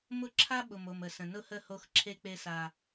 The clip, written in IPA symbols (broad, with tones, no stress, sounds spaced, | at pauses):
m ʊ˦ ǁʰ a˦ ɓ ʊ˨ m o˨ m ə˨ s ə̃˨ n ʊ˦ h ə˦˨ h o˦ x ǁʰ e˦ k͡p e˦ s a˦